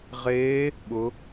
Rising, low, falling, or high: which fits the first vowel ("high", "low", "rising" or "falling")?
rising